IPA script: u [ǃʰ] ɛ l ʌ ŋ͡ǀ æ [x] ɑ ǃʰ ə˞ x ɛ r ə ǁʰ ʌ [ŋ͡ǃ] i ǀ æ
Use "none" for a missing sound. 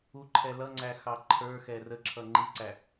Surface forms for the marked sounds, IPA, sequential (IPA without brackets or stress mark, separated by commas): ǃʰ, x, ŋ͡ǃ